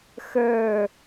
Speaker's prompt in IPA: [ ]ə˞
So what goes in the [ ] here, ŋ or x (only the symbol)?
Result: x